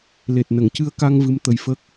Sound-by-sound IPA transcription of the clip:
l e˨˩ t̚ n ə˨˩˨ ŋ c ɨ˧ ə̯ k a˧ ŋ v ɨ˧˥ m t̪ ə˧ j f ə˦˥ k̚

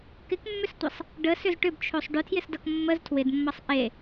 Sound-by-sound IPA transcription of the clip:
k ɪ k mː ʏ s tʷ ʌ sˤ | ɖ ə s ʏ z ʈ ʏ b t͡ʃʰ o sˤ ɖ ʏ tʰ j ɪ s d ʌ k mː ə z tʰ w ɪ d mː ʌ sˤ ʔ e

